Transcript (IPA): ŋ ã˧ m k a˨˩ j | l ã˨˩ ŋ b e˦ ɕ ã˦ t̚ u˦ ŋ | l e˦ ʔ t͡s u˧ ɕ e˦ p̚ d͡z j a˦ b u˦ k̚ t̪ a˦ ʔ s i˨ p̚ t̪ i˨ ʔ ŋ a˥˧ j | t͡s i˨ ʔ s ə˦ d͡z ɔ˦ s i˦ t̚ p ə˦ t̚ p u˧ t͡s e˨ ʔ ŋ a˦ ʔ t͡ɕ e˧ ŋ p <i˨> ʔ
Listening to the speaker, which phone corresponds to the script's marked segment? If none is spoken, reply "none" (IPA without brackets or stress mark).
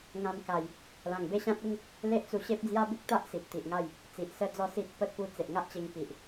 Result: i˨